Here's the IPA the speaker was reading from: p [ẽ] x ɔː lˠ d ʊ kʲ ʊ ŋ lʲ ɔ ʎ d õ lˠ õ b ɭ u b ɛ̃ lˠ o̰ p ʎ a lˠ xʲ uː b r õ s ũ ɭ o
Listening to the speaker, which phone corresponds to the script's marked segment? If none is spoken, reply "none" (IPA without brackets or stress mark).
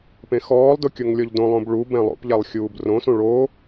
ẽ